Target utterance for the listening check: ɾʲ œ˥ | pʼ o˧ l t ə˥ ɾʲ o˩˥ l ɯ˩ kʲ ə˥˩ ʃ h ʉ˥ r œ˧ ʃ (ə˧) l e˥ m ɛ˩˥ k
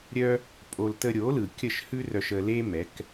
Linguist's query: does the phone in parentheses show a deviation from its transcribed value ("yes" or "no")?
no